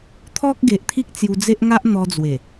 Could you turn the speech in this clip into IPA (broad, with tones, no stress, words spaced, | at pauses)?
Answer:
t̪ʰɔ˦k̚ɡe˨ʔt̪ʰi˦k̚ t͡sju˧ d͡ze˦ʔŋa˦ʔn̪ɔ˧d͡zwe˨˩